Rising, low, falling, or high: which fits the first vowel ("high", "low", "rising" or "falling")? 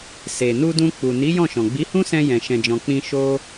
low